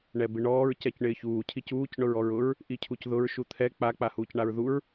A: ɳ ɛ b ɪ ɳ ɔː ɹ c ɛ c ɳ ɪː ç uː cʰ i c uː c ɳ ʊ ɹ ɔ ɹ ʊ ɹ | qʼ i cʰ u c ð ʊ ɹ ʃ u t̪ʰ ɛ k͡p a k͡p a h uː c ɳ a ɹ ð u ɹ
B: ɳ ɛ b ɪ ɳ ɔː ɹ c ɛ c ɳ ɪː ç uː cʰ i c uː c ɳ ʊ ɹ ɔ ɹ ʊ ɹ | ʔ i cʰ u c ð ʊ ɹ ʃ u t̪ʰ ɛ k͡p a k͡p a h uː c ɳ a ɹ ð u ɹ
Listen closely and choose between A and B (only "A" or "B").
B